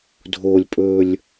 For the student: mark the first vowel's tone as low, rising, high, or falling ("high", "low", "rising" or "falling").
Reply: low